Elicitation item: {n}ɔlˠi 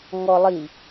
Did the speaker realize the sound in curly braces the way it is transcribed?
no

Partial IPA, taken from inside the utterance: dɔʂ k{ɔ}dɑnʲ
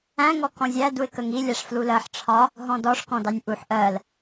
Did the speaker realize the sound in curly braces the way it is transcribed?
no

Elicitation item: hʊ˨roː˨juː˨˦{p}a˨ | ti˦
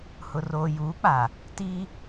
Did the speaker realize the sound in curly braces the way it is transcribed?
no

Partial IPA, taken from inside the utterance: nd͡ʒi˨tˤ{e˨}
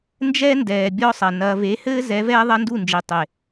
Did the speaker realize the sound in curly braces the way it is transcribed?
yes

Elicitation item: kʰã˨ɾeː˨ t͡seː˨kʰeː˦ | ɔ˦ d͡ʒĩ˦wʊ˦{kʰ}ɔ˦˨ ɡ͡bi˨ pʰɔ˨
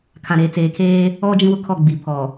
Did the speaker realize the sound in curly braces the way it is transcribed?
yes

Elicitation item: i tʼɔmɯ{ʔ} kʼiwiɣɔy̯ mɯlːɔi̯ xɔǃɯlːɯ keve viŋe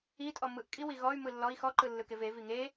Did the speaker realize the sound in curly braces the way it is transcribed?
yes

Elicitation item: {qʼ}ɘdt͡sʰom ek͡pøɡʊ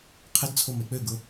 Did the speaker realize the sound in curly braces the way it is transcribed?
no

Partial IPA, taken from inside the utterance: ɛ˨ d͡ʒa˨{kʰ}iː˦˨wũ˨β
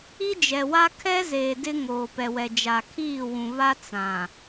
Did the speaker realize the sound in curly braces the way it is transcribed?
yes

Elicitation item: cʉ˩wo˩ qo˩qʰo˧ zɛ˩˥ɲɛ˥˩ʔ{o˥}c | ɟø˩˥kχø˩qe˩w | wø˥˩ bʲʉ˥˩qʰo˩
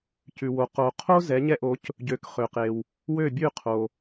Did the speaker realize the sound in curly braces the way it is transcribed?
no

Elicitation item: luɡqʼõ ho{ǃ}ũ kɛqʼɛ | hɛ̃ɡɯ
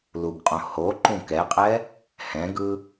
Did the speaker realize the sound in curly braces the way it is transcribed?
yes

